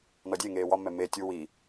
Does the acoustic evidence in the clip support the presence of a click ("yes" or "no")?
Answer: no